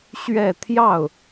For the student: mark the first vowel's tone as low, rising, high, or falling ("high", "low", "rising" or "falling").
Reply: falling